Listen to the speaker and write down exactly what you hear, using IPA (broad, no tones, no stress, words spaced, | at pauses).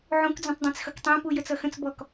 ʕũkd͡zũtˤdˤɑ̃t͡s xʌktˤæ̃pu jət͡sʌxə̃t͡s bɔk